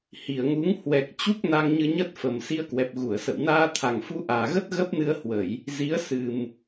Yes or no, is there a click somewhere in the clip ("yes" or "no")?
no